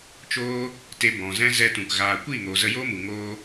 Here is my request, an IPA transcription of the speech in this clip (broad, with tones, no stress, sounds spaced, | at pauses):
t͡ʃ oː˧ | t e˨ b ɔ̃˨ z ɛ̃˧ z ɛ˧ t ũ˨ k ɣ aː˨ kʷ iː˦˨ ŋ oː˨ z ə˧ j oː˦ m u˨ ŋ oː˧